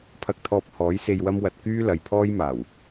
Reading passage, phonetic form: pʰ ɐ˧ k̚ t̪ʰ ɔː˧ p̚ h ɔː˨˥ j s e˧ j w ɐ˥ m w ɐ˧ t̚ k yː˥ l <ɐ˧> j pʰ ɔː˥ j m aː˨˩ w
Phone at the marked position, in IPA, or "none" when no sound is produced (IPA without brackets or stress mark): ɐ˨